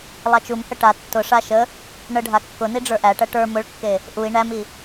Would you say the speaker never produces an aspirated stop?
yes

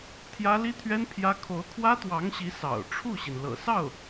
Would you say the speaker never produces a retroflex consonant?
no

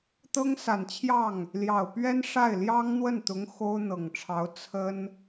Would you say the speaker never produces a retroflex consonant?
no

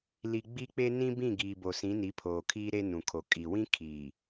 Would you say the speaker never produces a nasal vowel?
no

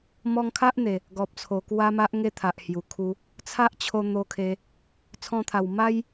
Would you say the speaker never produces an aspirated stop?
no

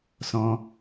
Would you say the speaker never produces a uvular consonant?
yes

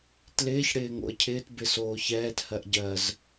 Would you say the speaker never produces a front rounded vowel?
yes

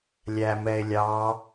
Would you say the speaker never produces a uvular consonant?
yes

